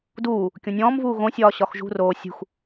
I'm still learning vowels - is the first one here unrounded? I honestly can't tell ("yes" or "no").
no